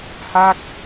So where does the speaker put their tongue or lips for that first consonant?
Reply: throat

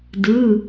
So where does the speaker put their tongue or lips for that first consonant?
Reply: tongue tip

